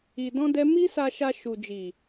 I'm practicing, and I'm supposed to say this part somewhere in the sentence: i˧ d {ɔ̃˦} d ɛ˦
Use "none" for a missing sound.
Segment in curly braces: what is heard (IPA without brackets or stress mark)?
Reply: ɔ̃˦